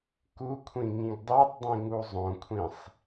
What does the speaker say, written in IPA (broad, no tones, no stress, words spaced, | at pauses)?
kukʷʰĩ ŋĩɡdˤutˤdˤĩ ŋuzˤõkʷʰĩsˤ